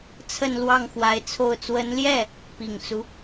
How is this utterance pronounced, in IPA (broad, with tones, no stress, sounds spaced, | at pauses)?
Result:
t͡sʰ ə˥˧ n l w ɑ˥˩ ŋ x w a˧˥ ɪ̯ t͡sʰ o˥˩ ʊ̯ t͡s w ə˧˥ n l j ɛ˥˩ | p i˨˩ ŋ t͡s u˦